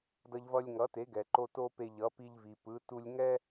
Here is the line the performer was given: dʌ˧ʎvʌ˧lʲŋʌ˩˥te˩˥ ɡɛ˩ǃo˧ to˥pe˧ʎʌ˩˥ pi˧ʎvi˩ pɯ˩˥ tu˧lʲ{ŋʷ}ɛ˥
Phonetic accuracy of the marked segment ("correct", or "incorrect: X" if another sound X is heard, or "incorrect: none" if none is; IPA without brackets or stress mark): incorrect: ŋ